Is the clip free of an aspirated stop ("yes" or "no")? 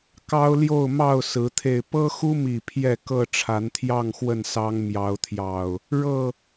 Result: no